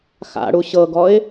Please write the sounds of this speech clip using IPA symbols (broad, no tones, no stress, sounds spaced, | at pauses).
x a̰ ɽ u ɕ ɤ ɡ ɔ ɪ̯